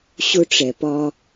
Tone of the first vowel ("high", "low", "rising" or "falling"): high